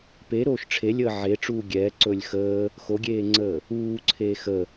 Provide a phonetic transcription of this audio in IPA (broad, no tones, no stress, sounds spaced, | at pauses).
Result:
p e ɾ oː ʃ ʈ͡ʂʰ e lʲ əː ʕ e ʈ͡ʂ uː ɡʲ ɛː ǀ ɵː lʲ x əː | x o ɡʲ eː ŋ͡ǀ əː | uː ǀʰ eː x ə